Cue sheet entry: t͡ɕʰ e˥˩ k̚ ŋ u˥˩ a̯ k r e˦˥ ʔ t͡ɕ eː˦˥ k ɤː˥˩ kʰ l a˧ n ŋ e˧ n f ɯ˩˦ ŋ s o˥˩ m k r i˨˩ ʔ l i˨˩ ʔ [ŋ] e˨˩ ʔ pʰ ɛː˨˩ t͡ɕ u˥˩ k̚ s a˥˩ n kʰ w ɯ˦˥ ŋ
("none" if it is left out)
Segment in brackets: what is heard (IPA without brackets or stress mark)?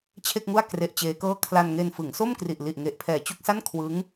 ŋ